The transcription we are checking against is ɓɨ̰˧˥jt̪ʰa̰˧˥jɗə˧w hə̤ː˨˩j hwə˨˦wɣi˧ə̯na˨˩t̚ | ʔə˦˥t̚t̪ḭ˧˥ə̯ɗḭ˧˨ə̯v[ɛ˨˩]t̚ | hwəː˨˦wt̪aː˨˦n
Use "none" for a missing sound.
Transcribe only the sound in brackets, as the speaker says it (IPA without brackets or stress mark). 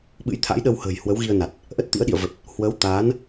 ə˨˩